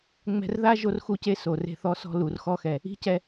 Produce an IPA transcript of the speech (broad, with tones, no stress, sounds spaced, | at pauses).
ŋ͡m ɛ̤˧ r ð a˦ ʒ o˦ r x u˦ c e˧ s o˨ r e̤˧ θ ɔ˧ s ɔ̤˧ l u˨ r x ɔ˧ x ɛ˨ | i̤˦ c ɛ˧